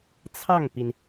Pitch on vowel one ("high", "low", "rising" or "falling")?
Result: falling